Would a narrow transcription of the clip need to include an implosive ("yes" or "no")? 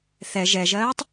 no